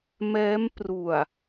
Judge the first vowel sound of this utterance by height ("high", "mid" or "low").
mid